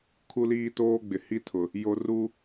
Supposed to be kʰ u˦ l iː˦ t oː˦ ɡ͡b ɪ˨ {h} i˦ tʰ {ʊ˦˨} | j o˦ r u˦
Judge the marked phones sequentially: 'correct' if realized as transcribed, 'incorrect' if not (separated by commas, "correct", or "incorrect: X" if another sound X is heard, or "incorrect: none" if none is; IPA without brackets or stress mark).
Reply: correct, incorrect: ʊ˨